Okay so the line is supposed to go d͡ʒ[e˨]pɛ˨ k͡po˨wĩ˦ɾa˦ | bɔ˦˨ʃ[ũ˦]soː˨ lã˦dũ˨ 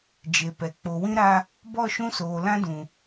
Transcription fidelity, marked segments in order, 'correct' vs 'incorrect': correct, correct

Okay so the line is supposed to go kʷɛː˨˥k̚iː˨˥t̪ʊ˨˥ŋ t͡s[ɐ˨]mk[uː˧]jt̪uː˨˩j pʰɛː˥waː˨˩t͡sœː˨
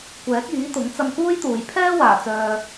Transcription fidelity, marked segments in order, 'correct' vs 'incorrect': incorrect: ɐ˧, incorrect: uː˥

